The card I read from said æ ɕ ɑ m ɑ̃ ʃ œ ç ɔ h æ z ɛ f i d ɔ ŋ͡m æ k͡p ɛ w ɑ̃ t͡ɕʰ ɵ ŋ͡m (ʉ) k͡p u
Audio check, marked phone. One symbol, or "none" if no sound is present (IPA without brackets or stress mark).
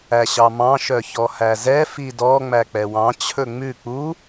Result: ʉ